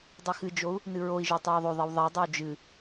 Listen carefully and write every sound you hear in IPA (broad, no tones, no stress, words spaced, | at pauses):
dˤixɨd͡ʒou̯ | nɨɹoi̯ʒo tˤoi̯ðˤoðˤiw ðˤadˤow d͡ʒɨ